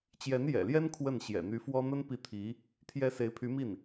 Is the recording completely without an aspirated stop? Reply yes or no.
no